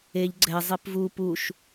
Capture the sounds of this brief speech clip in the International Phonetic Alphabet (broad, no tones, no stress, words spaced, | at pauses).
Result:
eʎ ɡ͡ǀɛ zˤepvu puʃ